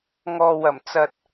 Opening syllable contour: low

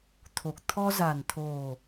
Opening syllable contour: low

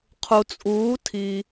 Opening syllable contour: low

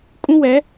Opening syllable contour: high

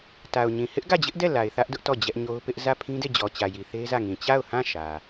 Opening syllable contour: low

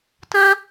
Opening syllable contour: high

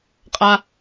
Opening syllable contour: high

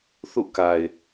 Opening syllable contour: falling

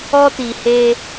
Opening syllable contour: high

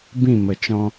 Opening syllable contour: falling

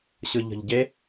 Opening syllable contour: low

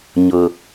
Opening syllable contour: low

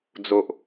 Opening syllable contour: low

